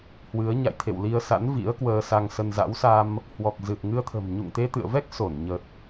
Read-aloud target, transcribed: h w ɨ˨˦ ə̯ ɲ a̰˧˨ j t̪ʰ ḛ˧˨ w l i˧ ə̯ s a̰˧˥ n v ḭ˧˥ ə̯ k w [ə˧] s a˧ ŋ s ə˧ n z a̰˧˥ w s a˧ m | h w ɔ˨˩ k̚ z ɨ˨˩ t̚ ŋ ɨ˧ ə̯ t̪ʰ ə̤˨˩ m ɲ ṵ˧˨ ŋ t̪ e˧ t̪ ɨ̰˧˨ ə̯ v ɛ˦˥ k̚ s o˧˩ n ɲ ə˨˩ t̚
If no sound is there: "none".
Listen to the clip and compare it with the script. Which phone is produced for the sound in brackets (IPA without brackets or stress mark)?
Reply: əː˧